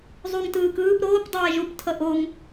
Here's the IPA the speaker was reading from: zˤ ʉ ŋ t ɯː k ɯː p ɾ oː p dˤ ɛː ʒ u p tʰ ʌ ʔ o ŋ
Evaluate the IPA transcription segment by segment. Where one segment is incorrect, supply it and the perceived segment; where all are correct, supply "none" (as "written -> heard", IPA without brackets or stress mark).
ʉ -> u